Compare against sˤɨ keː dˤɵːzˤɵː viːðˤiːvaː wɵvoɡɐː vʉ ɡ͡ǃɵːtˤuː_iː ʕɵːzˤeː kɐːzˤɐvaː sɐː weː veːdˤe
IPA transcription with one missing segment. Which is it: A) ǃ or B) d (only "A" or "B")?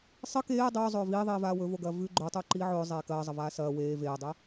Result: A